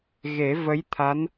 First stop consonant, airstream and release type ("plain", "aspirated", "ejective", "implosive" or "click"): aspirated